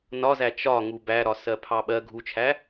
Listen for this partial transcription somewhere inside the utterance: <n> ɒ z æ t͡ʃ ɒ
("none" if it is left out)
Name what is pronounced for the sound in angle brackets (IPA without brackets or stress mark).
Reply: n